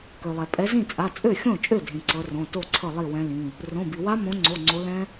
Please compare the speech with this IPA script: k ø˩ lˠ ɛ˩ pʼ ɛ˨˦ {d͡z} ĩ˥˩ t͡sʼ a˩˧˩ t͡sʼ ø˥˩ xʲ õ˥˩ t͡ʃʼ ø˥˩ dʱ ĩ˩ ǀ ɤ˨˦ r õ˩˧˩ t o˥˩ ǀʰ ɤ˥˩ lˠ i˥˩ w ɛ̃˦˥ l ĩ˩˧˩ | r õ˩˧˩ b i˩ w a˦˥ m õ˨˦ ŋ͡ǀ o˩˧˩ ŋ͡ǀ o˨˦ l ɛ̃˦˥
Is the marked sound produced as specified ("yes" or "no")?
no